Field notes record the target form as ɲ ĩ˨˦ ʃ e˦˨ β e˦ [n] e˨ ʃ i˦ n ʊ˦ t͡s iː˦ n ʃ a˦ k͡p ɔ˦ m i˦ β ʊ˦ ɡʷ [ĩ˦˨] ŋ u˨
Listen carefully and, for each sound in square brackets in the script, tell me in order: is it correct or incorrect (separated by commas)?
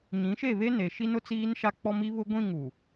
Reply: correct, correct